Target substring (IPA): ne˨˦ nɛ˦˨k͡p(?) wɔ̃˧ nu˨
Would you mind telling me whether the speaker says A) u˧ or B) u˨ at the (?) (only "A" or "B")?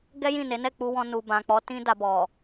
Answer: A